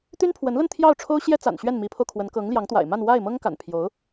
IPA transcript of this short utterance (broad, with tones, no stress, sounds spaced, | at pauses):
t̪ y˥ n pʰ w ə˧˥ n l ə˥˧ n t̪ʰ j ɑ˥˩ ʊ̯ ʈ͡ʂʰ o˥ ʊ̯ ɕ j ɛ˥ t͡s a̰˨˩ n ɕ ɥ ɛ˥˩ n m i˧˥ pʰ o˧ ʊ̯ kʰ w ə˧˥ n k ɤ˧˥ ŋ l j ɑ˧˥ ŋ t̪ w a̰˨˩ ɪ̯ m a˥˧ n w a˥˩ ɪ̯ m ɤ˥ ŋ k a̰˨˩ n pʰ j o˧˥ ʊ̯